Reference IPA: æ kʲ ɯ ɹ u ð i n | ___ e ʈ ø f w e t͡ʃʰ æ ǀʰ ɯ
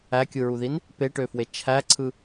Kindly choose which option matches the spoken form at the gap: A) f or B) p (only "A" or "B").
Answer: B